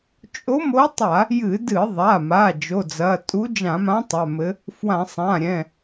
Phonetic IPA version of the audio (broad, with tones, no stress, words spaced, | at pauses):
t͡ʃʼo˧˥mo˧˥tˤa˧˩˧ | jɨ˧˩˧dɨ˧˩˧ðˤa˩˧˩ma˩˧˩ d͡ʒo˩˧˩d͡zɐ˩˧˩ tʼu˧˥d͡ʒã˧˩˧mã˧˥ tˤa˩˧˩mɘ˧˥ | fwã˧˩˧sˤã˩˧˩ɾʲɛ̃˩˧˩